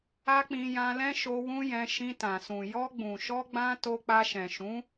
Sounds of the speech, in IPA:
a˦ k͡p ĩ˧ j ã˧ l ɛ̃˦ ʃ o˧ w ũ˦ j ɛ̃˧ ʃ ĩ˧ t ã˨ s ũ˨ j ɔ˧ ɡ͡b ũ˨ ʃ ɔ˧ ɡ͡b ã˧ t o˧ k͡p a˧ ʃ ɛ̃˨ ʃ ũ˨˦

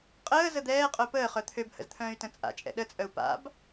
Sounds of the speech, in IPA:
qʼ əː z ə d̪ ɛː qʼ œ p əː χ œ t̪ʰ ø b h ə̰ z t̪ʰ œ̃ː y̯ t ə̃ t͡sʼ a̰ t͡ʃʼ ɛ̰ ɗ ə t͡sʼ œ u̯ p a̰ b

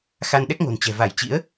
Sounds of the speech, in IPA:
x a˧ n ɗ ɛ˦˥ k̚ ŋ o̤˨˩ n t͡ɕ ɛ̤˨˩ v a˧˩ j t͡ɕ ḭ˧˥ ə̯

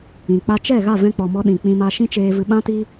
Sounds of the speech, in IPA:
ĩ˨ k͡p a˧ t͡ʃ ɛ˦˨ ɣ a˦˨ v ɛ̃˧ k͡p ɔ˨ m ɔ˧ ɗ ĩ˨ k͡p ĩ˧ m a˧ ʃ ĩ˦ t͡ʃ eː˧ v ɨ˧ ɓ ã˦ t i˦

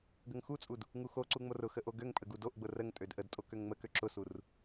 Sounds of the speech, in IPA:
ɡ ə ŋ x u t͡sʼ u d | ŋ u x o ǀ u ŋ͡m o r ʊ x ə ʔ o ɡ ø ŋ pʼ ə ɡ u d o ʔ ɡ͡b ʊ r ə ŋ tʼ ø d ʔ ə d tʼ o k ø ŋ ŋ͡m ə k ø ǁ ʊ s u r

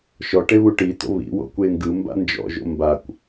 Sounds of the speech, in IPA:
ʃ ɔ ʈ e β u ʈ i t o̰ β ḭ w o̰ kʷ e ŋ ɡ ɯ m b a̰ n d͡ʒ ɔ̰ ʒ o̰ m b a kʷ

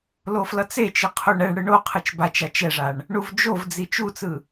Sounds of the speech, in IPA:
l o f l ʌ t͡s e t͡ʃ ɯ qʰ o ɳ ɛ ɳ ɽ ɯ ɳ o qʰ ɯ t͡ʃ b a t͡ʃ a t͡ʃ ɛ ʐ a ɳ | ɳ u v d͡ʒ o v d͡z i t͡ʃ u t͡s ɯ

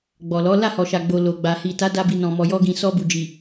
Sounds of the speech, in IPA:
ɡ͡b ɔ˨ l ɔ˨˦ l a˦˨ h ɔ˨ ʃ a˨ ɡ͡b o˨ l o˨ ɡ͡b a˨ h i˨ t a˨˦ d a˧ b i˨ n ɔ̃˨ m ɔ˨ j ɔ˧ ɡ ĩ˨ s ɔ˧ b u˨ d͡ʒ i˨

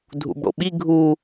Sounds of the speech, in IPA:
dʱ ṵ b ɽ o̰ ɓ i ɡʱ u

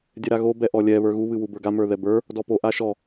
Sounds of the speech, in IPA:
dʲ ɛ ɾ a ɣ o b ɛ ʔ ɔ lʲ ɛ β ə˞ ɣ u β ɨ w u b ə˞ ɡ a m ə˞ ð ɛ b ə˞ | d ɔ p o ʔ a ʃ ɔ

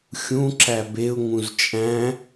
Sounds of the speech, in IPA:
xʲ ũ ǁ æ b e ʊ̯ ŋ ũ z t͡ʃʼ æ̃

